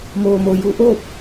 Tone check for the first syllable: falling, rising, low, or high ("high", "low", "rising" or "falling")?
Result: low